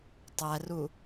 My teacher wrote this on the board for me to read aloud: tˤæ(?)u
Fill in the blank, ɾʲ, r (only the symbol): r